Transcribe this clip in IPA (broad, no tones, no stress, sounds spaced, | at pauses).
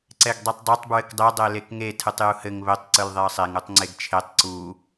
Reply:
ǀ ɛ ɡ dˤ i tˤ dˤ ɛ tˤ b ɹ ɘ k dˤ e dˤ ɛ l e k ŋ e tʰ ɯ tˤ j u h ɘ ŋ β ɘ tˤ ǀ ɯ l ðˤ e ə̯ sˤ e ŋ u tˤ ŋ͡ǀ e ɡ t͡ʃʰ e tˤ ǀ u